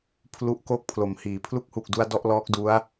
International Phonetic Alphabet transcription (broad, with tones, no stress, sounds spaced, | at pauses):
pʰ l u˦˥ ʔ k oː˥˩ k̚ pʰ l o˨˩ m h iː˩˦ pʰ l u˦˥ k̚ h u˨˩ k̚ d u˧ a̯ d ɔ˥˩ ʔ l ɔː˦˥ k̚ d u˦˥ a̯